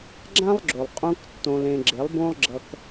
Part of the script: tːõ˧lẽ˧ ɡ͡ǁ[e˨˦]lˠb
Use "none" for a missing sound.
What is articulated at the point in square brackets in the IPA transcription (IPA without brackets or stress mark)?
e˨˦